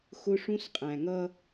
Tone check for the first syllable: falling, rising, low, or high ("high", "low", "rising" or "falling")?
high